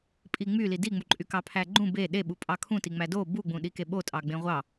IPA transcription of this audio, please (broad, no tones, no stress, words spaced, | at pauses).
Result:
pʼiŋ͡myli diŋ͡muǃʼy kɑpʰæɡ͡ǃũ be ɗeɓupʼɑ kʰũti ŋ͡mædo buɡ͡bũ ɗikeɓotʼɑ ɡ͡bẽʁʷɑ